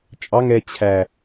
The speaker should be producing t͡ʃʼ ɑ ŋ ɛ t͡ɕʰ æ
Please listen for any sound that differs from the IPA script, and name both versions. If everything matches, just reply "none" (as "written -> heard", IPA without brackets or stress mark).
none